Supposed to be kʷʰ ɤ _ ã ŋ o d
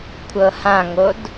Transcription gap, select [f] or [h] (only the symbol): h